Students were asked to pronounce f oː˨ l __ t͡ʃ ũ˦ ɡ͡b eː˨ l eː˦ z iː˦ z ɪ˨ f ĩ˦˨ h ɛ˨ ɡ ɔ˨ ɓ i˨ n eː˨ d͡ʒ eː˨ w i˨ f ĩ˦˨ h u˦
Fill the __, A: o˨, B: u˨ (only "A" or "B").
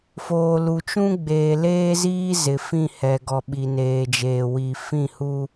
B